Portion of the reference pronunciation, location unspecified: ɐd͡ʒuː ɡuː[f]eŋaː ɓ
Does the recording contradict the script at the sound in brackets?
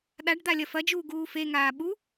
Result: no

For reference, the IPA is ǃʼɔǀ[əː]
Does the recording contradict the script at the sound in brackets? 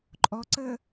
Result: no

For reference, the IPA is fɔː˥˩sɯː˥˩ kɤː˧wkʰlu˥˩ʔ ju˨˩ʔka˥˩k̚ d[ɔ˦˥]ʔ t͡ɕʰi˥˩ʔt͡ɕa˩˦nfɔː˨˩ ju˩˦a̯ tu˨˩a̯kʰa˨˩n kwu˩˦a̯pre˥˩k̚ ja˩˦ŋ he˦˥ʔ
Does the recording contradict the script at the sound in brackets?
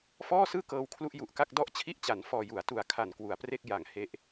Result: yes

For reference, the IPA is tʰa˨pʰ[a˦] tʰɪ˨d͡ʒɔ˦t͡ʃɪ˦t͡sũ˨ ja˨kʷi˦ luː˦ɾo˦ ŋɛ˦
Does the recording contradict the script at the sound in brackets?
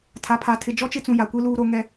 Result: yes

